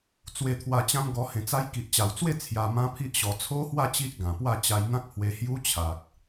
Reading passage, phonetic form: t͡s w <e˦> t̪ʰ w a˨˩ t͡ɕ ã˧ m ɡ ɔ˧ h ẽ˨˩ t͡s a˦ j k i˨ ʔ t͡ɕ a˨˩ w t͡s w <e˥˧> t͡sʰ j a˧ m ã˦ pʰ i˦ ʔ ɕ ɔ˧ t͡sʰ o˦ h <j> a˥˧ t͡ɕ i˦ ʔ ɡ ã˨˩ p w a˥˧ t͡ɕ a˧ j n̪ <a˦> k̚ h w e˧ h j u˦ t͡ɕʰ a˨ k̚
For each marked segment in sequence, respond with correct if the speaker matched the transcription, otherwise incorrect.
incorrect: e˨˩, correct, incorrect: w, incorrect: ã˦

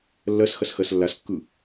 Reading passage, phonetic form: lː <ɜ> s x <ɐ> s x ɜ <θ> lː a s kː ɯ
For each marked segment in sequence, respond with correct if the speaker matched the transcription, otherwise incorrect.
correct, correct, incorrect: s

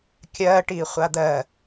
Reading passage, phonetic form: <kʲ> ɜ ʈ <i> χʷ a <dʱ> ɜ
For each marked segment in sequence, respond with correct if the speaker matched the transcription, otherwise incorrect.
correct, correct, incorrect: d̪

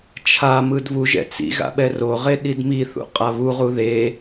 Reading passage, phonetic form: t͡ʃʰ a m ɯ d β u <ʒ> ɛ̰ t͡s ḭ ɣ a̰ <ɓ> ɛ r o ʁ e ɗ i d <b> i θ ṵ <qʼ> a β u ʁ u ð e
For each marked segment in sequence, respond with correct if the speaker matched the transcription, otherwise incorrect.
correct, correct, incorrect: m, correct

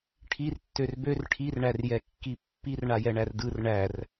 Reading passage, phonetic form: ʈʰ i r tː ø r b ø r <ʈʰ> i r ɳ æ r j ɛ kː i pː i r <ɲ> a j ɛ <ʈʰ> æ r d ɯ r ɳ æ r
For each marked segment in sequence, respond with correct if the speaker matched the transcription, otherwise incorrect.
correct, incorrect: ɳ, incorrect: ɳ

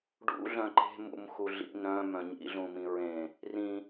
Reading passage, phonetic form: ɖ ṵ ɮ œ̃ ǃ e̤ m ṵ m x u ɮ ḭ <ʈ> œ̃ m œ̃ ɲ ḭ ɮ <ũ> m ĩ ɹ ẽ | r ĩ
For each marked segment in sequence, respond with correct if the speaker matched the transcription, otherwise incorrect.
incorrect: n, correct

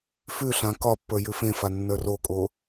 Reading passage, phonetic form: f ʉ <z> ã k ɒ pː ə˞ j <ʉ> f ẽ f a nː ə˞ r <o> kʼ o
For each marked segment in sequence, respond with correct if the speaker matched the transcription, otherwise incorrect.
incorrect: ɬ, correct, correct

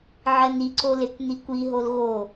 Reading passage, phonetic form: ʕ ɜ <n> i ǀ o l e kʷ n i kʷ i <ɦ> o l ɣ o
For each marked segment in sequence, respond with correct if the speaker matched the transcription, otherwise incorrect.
correct, correct

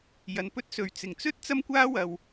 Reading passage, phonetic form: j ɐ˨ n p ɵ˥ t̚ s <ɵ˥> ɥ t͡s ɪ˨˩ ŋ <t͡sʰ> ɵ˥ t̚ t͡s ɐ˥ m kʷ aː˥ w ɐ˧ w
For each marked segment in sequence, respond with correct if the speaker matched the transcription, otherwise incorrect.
incorrect: ɵ˨˧, incorrect: t͡s

